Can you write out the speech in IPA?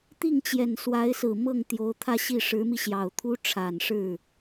t̪ i˥˩ ŋ t͡ɕ j ɛ˨˩ n s w a˧˥ ɪ̯ s ɹ̩˨˩ m ɤ˥˩ ŋ t̪ j o˧˥ ʊ̯ t̪ʰ ä˥˧ ɕ i˥˩ ʂ ɻ̩˧˥ m i˧ ɕ j ɑ˨˩ ʊ̯ t̪ʰ u˥ ʈ͡ʂʰ a˨˩ n ʂ ɻ̩˥˩

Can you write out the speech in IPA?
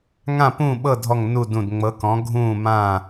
ŋ ã˦˨ p ũː˦˨ ɓ ɤ˦˨ dʱ ɔ˦˨ ŋ n u˦˨ d ũ˦˨ d ŋ͡m ɤ˧˥ k ɔ̃˧˥ ɡʱ ũː˦˨ m ãː˦˨

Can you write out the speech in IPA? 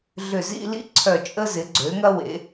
ɮ ʏ˧˩ z ḭ˥˧ l ḭ˥ ǀʰ œ˧˩ t͡ʃʼ ə˧ z ɪ˩˧ ɡ͡ǀ ø˩˧ ŋ ɐ˧ w ḛ˩˧

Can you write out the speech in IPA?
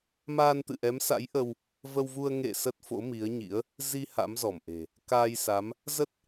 m aː˧ n t̪ ɨ̰˧˨ ʔ ɛ˨˦ m s a̰˧˥ j ʔ ə˧ w | v ə˧ w v u˧ ə̯ ŋ ḛ˧˨ s ə˦˥ t̚ f o̰˧˥ m i˨˦ ə̯ ɲ ḭ˧˥ ə̯ | z i˧ h a̰˧˥ m z ɔ˧˩ m ʔ e̤˨˩ | k aː˧ j s a˨˦ m | z ə˦˥ t̚

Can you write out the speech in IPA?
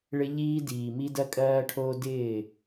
ɭ ɪ˦ ʎ iː˦ d iː˨ m i˦ d ɜ˦ kʼ ɜː˦ ʈʰ oː˦ d ɪː˦˨

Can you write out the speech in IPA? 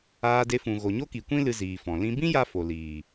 aː˧ d e˧ f ũ˨ ɣ o˨ ɲ o˦ k i˨ kʷ ĩ˦ l ɨ˧ z iː˨ f ɔ̃˨ l ĩ˦ b ĩ˦ j a˦ f o˨ l iː˨

